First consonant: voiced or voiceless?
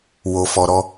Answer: voiced